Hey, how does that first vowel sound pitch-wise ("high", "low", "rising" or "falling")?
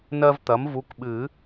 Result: high